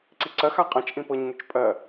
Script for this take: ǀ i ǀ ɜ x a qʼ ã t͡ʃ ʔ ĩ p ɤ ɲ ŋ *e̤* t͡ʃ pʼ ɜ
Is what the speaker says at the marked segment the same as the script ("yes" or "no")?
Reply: no